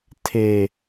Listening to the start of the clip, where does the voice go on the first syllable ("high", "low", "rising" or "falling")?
low